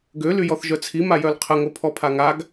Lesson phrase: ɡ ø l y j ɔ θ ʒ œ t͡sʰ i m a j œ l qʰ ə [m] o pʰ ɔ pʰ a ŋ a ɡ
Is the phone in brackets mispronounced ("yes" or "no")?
yes